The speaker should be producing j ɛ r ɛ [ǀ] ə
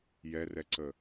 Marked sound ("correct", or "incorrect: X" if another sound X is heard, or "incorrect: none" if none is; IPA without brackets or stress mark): correct